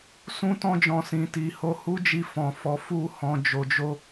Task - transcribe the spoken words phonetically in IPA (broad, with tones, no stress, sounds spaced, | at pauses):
s ũ˦ t ɔ̃˦ d͡ʒ ɔ̃˧ s ĩ˨ t i˨ h o˧ h u˦ d͡ʒ i˧ f ɔ̃˨ f ɔ˨˦ f u˦ h ɔ̃˧ d͡ʒ o˧ d͡ʒ o˦